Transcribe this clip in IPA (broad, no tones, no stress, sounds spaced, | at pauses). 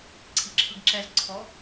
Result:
ǀʰ i ǁʰ ɯ ɡ ǁ ɛ z ǀʰ ɔ